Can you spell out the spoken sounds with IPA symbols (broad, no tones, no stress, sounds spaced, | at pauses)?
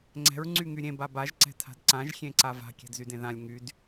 ŋ͡ǀ ɛ̤ ɹ ŋ͡ǀ y ŋ y ɾʲ ẽ b a b a ʒ ǀ ɛ̤ tʰ a̤ d ǀ ã ʒ xʲ ẽ ǀ a v a̤ kʲ ɛ̤ d z y d ẽ ð ã lʲ ŋ y d